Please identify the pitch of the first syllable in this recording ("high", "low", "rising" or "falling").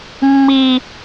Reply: high